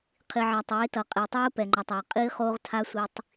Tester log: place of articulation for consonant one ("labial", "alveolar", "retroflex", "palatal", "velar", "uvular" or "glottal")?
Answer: uvular